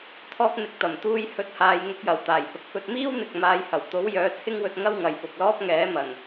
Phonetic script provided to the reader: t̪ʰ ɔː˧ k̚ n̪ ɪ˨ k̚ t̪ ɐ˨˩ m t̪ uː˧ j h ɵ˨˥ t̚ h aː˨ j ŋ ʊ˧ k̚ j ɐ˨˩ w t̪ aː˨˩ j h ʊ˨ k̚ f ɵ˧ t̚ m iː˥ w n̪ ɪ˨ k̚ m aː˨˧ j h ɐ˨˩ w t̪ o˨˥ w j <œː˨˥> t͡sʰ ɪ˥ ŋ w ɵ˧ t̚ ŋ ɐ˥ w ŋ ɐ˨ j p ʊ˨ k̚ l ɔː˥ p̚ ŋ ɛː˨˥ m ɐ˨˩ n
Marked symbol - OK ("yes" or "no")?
yes